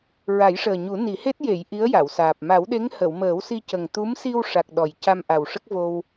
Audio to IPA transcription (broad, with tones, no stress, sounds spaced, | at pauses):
ɹ a˨˩˦ j ʂ əː˨˩ ɲ u˨˩˦ n i˨˩˦ h e˦˥ t̚ j e˨˩˨ j ʔ i˧˥ ə̯ j a˨˩˨ w s aː˨˩ p̚ m a˨˩˦ w ɗ e˧˥ ŋ h ə˨˩˨ w m əː˨˩˦ w s i˧ c ə˨˩ ŋ t̪ u˧˥ m s i˧ w ʂ a˨˩ k̚ ɗ ɔ˨˩ j c a˧ m ʔ a˨˩ w ʂ ə˦˥ k̚ v o˧ w